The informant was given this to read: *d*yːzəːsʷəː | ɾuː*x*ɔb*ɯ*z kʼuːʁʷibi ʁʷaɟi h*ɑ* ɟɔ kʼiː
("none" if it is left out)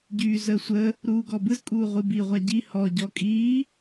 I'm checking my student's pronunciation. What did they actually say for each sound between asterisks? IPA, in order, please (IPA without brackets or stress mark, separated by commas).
ɟ, ɡ, ɯ, ɔ